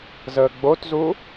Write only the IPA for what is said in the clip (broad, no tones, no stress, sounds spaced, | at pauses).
z əː ɡ͡b o t z u